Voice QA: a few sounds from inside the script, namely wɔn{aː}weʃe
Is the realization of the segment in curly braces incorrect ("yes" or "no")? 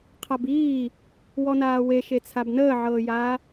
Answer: no